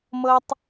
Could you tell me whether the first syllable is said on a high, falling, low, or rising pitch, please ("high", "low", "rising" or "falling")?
high